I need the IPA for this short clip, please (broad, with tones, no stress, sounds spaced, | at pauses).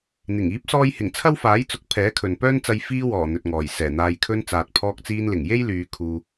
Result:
n̪ ɪ˨˩ ŋ iː˨˥ p̚ s ɔː˧ j h ɪ˨˩ ŋ t͡sʰ ɐ˥ w f aː˨˥ j t͡s ʊ˨˥ k̚ pʰ ɛː˨˥ kʰ ɵ˨ n p œː˥ n t͡s ɐ˧ j f iː˧ w ɔː˨˩ n̪ ɵ˨ t̚ ŋ ɔː˨˩ j s ɛː˨˩ n̪ aː˨ j kʰ ɵ˧ n t͡s aː˨ t̚ pʰ ɔː˧ k̚ t͡s iː˧ n l ɪ˨˩ ŋ j e˥ j l yː˨˧ kʰ uː˧